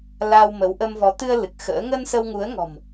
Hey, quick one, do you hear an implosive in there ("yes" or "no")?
no